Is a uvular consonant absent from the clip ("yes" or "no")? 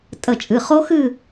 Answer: no